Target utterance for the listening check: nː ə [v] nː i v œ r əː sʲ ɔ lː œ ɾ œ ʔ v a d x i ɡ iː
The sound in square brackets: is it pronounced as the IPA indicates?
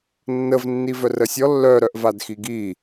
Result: yes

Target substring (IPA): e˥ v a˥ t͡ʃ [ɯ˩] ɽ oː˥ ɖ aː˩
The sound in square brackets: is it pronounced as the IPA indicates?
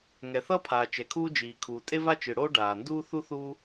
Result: yes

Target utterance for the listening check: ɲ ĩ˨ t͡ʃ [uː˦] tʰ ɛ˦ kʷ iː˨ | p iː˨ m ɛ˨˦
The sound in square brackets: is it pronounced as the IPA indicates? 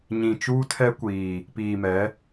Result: yes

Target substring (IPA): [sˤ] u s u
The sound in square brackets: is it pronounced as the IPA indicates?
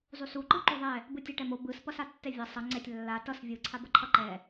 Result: no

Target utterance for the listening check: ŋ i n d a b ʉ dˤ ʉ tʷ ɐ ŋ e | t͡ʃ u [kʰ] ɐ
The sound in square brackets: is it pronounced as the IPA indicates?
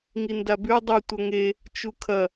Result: yes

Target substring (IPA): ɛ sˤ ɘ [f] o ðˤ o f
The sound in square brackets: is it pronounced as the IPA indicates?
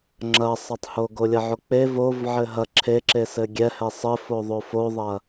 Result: yes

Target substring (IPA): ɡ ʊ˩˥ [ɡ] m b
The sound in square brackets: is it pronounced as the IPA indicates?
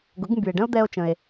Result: yes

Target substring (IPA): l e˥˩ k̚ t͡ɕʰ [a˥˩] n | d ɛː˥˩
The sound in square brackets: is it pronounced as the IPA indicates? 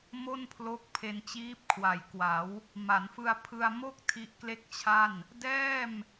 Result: yes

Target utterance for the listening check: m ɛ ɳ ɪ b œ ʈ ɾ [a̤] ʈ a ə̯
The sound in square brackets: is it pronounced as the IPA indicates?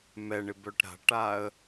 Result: yes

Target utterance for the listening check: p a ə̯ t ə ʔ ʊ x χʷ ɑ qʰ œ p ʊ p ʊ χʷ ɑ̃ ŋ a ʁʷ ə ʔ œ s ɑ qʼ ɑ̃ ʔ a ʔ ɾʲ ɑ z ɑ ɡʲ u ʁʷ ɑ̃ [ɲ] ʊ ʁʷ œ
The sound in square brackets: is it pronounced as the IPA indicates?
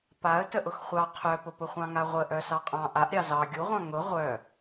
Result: no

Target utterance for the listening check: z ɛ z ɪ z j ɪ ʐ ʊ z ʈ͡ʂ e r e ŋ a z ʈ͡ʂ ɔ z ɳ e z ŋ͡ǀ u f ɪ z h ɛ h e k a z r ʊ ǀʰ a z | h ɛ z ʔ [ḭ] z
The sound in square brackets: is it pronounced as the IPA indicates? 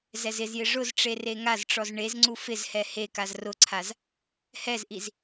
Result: no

